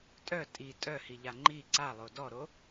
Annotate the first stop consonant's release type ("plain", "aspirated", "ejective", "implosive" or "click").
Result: ejective